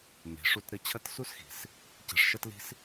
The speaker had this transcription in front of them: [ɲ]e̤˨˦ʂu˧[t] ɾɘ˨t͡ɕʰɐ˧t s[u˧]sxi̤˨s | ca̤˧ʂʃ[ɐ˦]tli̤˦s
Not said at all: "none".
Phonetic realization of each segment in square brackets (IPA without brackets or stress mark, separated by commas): m, t, u˦, ɐ˦